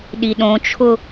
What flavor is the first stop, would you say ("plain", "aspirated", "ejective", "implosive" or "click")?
implosive